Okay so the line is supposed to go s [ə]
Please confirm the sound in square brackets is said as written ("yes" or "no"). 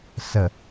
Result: yes